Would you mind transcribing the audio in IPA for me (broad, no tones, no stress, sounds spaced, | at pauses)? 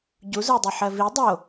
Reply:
ɟ u z ə˞ dˤ e ħ ɜ v i dˤ o